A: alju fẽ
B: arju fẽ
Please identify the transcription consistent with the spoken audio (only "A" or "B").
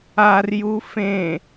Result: B